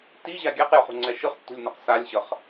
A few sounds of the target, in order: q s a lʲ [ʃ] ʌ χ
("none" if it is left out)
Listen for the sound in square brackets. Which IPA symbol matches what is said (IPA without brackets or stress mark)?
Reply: ɕ